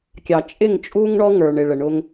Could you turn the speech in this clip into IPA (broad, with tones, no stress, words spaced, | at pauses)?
kʲɑ˨t͡ʃʼɪ˦˨ŋt͡ʃʼu˦ŋ ɳɔ˦ ŋə˞˨ɳɪ˨ɭə˨ ɳʊ˦ŋ